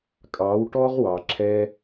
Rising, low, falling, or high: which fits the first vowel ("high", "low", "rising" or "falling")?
rising